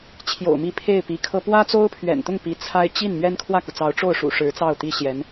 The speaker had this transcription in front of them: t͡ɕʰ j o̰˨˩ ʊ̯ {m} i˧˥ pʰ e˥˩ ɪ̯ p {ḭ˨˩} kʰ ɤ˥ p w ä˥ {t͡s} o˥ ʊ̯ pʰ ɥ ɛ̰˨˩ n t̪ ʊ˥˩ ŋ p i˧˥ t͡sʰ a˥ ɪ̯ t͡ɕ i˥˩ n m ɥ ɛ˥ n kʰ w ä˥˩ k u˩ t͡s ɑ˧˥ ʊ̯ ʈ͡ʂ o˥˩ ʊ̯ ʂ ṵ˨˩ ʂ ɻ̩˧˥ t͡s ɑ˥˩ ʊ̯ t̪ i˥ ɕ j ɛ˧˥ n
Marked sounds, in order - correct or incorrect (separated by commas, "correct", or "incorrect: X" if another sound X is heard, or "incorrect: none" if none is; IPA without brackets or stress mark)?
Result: correct, incorrect: i˧˥, correct